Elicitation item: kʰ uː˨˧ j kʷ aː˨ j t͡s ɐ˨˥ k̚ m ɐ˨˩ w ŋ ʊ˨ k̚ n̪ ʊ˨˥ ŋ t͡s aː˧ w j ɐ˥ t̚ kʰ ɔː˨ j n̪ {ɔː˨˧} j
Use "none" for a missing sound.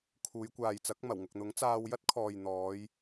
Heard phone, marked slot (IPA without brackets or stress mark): ɔː˨˧